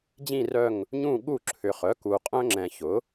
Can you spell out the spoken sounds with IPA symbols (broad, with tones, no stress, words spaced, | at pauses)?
d͡ʑĩ˦˨rœ˦˨ŋ | ɲũ˦˨ɠu˦˨ǁʰʏ˨ χœ˩˥ku˨qʼœ̃˦ ŋ͡ǁɛ̃˨ çʊ˩˥